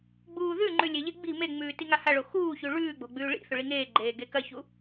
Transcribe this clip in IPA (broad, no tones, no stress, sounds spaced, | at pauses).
ɡ͡b uː ð ʉ ŋ͡ǃ ʉ lʲ e ʎ e ɡ͡b i̤ m e ŋ͡m ʉː t i ŋ a h a ɭ o x uː ç ʉ ɭ ʉː ɡ͡b o̤ ɡ͡b ʉː ɭ ḭ θ ɵ ɭ i ŋ eː ɡ͡ǃ eː ɡ e k ɐ ç u